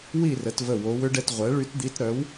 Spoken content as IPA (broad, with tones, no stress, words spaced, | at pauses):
wi˥˨rə˩˧t və˧˩wo˩˧wʏ˧˥ɖɛ˧t ʁʷɛ˩˥ɭy˧˥td̪i˧˥t ɾœ˩˥w